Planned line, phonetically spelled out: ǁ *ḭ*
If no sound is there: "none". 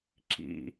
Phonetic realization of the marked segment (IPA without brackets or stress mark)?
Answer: ḭ